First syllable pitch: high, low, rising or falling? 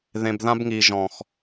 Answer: low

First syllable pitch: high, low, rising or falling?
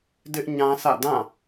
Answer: high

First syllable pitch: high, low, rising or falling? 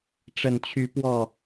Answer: low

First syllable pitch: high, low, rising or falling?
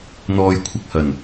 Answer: low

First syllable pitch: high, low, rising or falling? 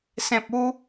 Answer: low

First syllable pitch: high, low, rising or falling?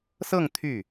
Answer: falling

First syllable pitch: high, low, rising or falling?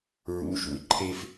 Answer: rising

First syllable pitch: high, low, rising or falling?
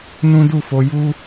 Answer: high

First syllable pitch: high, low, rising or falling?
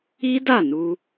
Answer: high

